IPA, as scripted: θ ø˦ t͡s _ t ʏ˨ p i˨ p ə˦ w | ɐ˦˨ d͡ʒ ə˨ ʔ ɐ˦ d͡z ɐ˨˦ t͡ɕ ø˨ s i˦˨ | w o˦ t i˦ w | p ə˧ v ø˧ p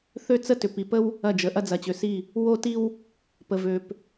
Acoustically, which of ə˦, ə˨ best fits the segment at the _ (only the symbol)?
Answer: ə˦